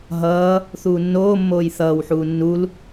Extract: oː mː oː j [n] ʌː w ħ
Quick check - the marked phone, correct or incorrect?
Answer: incorrect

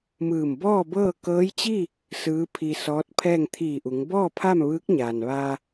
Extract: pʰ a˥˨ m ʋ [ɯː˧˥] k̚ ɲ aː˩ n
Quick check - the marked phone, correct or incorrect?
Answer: correct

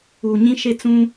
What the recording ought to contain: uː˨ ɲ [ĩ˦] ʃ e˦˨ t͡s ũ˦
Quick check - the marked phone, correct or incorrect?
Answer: correct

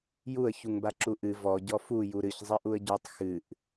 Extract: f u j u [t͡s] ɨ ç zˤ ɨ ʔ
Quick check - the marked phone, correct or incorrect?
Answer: incorrect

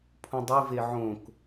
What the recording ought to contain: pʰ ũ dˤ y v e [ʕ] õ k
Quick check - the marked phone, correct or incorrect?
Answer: correct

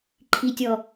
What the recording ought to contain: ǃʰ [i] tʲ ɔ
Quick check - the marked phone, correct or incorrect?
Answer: correct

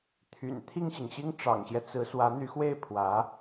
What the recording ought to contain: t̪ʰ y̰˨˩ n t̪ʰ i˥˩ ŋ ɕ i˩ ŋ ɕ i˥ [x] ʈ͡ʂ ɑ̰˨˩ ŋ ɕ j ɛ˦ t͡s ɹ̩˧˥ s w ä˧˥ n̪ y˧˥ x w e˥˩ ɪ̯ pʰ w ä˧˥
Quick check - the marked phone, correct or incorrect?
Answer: incorrect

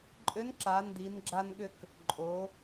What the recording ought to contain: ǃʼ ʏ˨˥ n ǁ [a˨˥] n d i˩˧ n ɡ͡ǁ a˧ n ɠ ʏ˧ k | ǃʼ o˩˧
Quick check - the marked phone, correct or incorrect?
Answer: incorrect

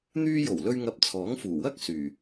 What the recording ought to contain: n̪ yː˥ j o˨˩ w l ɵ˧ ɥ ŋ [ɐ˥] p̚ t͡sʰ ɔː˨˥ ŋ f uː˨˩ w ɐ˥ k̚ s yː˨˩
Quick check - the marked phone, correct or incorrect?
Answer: incorrect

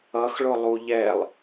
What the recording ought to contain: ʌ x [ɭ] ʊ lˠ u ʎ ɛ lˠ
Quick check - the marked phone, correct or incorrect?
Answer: correct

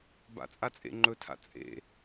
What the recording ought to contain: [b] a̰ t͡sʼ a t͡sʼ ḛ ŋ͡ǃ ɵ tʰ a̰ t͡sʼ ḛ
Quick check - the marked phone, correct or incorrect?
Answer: correct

